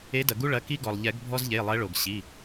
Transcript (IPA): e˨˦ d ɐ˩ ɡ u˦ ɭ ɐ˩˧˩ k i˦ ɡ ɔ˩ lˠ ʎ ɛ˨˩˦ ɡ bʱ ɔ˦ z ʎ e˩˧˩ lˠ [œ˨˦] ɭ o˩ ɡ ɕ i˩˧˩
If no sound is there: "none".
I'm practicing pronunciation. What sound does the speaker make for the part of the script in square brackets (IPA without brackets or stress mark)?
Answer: ɛ˨˦